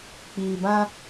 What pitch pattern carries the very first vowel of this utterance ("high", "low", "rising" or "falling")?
low